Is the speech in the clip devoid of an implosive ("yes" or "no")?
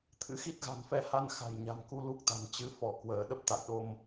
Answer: no